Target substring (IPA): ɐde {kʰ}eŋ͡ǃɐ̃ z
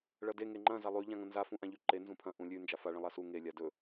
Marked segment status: incorrect: ŋ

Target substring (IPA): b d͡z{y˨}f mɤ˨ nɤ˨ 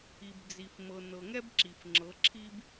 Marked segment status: incorrect: i˨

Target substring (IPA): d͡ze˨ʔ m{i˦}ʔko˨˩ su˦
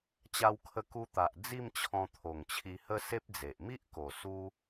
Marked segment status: correct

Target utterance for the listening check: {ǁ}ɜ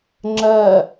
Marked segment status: incorrect: ŋ͡ǁ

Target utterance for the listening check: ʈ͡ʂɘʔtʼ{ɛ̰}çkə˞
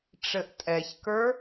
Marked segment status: incorrect: ɛ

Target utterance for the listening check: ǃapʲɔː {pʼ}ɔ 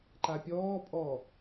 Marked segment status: correct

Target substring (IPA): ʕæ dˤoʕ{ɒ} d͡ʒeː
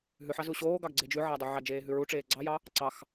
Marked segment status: incorrect: ɑ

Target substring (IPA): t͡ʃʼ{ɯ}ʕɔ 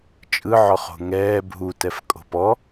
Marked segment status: correct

